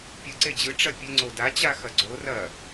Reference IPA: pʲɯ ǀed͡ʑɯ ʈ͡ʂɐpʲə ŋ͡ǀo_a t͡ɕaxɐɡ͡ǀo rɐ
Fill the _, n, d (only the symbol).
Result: d